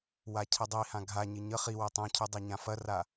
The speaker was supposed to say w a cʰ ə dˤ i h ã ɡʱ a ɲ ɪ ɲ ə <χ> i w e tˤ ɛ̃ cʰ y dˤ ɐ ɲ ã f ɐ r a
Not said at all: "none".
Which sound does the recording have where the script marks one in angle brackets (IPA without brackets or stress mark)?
χ